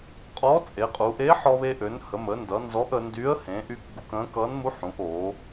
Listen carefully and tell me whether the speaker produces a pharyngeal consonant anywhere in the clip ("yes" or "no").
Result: yes